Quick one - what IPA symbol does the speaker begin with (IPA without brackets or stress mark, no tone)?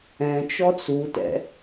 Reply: ɛ̃